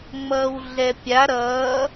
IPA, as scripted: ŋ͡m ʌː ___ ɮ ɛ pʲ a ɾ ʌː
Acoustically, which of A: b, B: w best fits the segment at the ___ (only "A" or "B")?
B